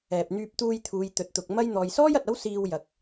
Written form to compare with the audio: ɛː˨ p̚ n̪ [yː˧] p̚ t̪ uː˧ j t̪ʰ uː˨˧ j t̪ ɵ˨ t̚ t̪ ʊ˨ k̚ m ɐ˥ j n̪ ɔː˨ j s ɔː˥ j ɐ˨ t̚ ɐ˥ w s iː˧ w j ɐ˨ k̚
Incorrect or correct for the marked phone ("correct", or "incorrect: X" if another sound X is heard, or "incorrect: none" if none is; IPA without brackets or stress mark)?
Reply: correct